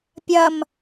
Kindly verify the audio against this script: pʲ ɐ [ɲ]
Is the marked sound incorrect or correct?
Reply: incorrect